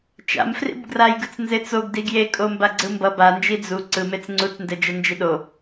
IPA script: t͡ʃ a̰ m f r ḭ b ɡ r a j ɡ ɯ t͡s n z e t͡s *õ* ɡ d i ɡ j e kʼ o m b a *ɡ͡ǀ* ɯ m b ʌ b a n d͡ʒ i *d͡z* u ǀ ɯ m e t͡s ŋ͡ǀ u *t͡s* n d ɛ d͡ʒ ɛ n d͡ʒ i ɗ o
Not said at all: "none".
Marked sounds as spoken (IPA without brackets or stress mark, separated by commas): o, ɡ͡ǀ, d͡z, t͡s